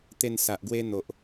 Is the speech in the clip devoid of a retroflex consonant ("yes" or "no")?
yes